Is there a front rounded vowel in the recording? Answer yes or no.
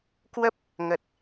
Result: no